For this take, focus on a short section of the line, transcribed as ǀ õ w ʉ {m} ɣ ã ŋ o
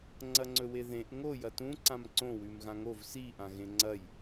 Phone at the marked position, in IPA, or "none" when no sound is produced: m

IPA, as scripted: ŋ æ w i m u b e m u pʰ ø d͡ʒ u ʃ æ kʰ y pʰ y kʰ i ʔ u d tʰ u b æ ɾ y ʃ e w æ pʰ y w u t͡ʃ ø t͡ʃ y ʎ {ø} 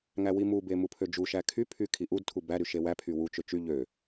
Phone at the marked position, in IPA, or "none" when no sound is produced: ø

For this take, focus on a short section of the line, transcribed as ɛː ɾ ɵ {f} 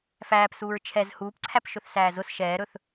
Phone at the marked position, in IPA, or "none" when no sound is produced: θ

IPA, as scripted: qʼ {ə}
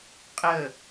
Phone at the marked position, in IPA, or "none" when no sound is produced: ə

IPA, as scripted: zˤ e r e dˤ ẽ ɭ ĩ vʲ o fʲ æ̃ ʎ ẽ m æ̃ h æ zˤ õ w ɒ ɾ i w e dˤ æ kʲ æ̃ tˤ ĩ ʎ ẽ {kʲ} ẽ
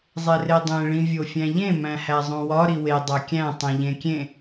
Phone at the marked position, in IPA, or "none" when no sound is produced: kʲ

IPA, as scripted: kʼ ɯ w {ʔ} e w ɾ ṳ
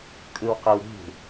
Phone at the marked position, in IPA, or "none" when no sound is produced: q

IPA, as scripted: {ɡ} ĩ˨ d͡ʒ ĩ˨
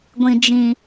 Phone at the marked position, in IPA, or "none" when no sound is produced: ɡʷ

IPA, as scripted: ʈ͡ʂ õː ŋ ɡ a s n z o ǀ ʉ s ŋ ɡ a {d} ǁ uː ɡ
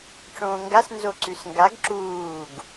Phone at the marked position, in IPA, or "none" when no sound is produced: ɡ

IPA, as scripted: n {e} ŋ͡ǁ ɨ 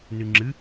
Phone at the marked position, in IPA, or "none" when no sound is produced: ɨ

